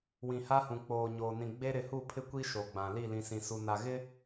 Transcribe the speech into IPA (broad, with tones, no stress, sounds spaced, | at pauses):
w ĩ˨ h a˦ h ũ˨ k͡p oː˨ ɲ oː˨ n ĩ˨ ɡ͡b e˦ ɾ ɪ˨ h u˦˨ pʰ ɪ˦ kʷ i˦ ʃ o˨ ɡ͡b ã˨ l i˦˨ l ĩ˨ s ĩ˨ s u˨ n a˨ ɣ ɪ˦